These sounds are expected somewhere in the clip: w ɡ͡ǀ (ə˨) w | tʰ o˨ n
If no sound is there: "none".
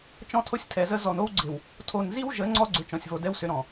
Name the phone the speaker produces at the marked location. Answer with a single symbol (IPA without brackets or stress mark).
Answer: ɪ˨